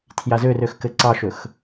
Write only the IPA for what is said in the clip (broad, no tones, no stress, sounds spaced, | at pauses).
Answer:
tʰ j a z ø r ø x k ɘ ǀ ɑ ʃ ɵ x